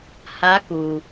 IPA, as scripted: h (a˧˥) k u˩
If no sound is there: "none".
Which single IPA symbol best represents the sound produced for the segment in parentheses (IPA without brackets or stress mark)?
a˧˥